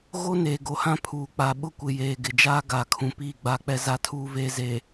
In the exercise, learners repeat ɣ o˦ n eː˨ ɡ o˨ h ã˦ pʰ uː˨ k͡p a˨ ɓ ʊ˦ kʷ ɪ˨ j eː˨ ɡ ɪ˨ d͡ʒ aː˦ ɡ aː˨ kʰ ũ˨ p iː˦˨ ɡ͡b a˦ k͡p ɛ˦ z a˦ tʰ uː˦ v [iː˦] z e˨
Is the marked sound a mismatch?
yes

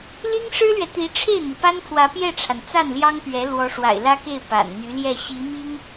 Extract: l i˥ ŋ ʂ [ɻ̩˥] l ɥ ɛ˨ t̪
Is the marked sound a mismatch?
no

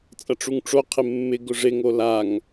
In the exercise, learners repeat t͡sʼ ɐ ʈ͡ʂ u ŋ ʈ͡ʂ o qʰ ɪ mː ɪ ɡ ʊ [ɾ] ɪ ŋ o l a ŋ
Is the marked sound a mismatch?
yes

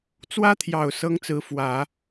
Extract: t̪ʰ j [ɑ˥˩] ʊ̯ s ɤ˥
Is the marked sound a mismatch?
yes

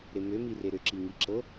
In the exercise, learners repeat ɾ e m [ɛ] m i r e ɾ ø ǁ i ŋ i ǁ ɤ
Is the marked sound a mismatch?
yes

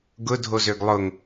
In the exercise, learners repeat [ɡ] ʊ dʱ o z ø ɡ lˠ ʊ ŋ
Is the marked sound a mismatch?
no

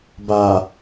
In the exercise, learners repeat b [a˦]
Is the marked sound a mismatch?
yes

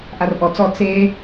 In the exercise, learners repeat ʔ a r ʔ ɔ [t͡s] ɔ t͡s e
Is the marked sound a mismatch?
no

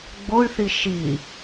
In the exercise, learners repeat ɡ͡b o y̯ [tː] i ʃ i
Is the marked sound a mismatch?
yes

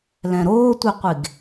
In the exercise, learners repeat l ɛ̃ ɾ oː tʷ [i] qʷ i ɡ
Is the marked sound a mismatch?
no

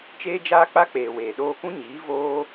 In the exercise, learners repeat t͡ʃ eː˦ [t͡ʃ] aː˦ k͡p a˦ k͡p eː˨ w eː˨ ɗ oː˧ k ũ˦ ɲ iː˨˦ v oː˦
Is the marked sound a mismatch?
yes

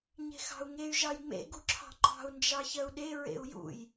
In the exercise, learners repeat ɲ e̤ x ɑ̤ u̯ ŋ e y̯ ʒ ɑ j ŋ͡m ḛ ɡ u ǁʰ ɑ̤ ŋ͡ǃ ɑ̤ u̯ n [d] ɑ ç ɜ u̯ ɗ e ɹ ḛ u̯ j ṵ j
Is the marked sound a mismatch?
yes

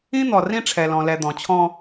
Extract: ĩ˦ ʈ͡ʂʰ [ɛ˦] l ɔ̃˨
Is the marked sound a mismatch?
yes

